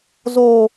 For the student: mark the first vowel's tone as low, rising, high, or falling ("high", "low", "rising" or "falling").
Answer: low